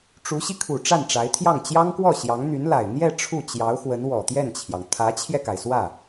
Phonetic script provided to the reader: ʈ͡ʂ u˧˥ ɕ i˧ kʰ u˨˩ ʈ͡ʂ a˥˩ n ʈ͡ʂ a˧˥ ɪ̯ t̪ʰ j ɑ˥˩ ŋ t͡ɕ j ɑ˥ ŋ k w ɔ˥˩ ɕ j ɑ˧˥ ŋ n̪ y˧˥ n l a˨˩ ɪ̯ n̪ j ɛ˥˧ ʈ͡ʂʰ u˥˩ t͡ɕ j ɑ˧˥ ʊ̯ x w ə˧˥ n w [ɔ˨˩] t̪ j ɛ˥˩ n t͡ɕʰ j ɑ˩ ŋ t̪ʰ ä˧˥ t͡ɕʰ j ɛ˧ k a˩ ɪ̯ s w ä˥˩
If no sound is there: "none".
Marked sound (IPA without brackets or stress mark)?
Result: ɔ˨˩